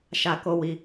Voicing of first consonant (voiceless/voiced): voiceless